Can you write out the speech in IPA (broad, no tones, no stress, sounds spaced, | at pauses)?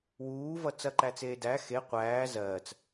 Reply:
w uː v ʌ t͡s ɐ ǃ æ t͡s eː d æ x e qʷ æː z ɜː t͡s